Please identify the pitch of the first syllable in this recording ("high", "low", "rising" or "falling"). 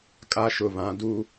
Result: high